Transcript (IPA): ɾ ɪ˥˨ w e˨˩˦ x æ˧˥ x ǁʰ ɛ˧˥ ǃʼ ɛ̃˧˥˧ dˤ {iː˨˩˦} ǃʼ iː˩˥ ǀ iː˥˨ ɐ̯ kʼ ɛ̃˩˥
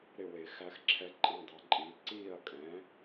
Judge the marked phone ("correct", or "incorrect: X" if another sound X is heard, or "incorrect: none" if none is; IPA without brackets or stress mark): incorrect: i˨˩˦